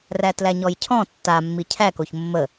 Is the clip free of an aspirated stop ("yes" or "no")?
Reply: no